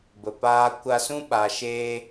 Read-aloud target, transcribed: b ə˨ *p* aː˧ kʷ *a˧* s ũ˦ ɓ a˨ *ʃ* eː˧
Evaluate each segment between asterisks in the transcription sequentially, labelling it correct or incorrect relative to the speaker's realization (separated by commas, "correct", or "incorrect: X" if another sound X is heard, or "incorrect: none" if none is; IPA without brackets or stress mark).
correct, correct, correct